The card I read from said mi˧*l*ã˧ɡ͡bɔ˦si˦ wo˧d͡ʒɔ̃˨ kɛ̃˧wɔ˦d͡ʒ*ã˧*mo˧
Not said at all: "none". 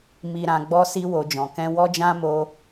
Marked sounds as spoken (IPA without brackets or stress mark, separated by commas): ɾ, ã˦